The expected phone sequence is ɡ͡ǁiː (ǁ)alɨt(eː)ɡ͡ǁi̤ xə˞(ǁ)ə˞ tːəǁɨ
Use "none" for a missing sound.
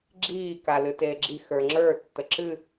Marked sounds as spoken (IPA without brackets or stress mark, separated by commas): k, eː, ŋ͡ǁ